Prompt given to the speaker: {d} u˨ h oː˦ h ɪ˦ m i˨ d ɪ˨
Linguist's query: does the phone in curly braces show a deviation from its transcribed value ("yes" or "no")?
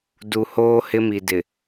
no